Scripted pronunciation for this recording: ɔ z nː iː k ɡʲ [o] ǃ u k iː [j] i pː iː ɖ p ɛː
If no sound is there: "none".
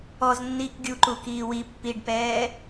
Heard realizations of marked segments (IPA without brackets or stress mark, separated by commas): u, w